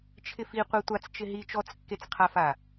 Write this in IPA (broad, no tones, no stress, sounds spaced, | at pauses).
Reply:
t͡ʃʰ ɪ f i qʷ ɛ tʷ a t͡s t͡ʃ ɪ ɦ i t͡ʃ ɔ t͡s kː e t͡s qʰ a f a